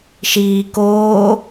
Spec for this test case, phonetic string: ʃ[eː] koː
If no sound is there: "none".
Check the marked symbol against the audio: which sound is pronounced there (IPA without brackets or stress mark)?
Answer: iː